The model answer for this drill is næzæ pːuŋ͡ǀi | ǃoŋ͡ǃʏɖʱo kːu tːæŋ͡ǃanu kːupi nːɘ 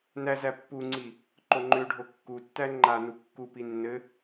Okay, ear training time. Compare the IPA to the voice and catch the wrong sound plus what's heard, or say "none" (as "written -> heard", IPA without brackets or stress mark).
none